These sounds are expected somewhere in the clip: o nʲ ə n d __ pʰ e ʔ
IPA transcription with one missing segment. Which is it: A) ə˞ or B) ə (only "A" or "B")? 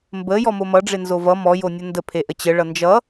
B